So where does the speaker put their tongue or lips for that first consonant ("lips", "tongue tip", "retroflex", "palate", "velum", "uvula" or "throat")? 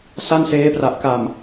tongue tip